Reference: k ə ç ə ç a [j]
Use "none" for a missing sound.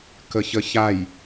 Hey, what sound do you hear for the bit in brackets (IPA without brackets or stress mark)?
j